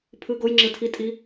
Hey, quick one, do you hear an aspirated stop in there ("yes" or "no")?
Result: yes